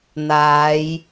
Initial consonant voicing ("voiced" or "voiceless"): voiced